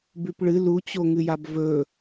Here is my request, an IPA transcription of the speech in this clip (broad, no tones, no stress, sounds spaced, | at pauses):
b ʉ p ɭ ɨ l u t͡ɕ o ŋ ɨ j a b v ɵ